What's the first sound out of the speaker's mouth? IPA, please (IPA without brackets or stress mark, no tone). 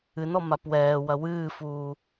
ɨ